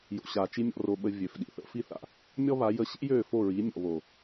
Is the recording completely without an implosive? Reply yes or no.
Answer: no